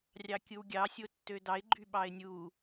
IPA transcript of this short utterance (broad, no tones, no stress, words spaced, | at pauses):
rʲɑkʲɯwɡʲɑ sʲotːødɑɪ̯ ɡ͡ǃyɓɑɪ̯nʲu